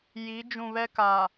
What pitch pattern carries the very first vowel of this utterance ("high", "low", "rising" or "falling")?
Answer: rising